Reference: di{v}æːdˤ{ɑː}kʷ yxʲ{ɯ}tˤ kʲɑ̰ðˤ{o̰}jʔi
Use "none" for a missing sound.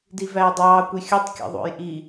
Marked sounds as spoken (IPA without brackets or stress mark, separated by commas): v, ɑː, ɯ, o̰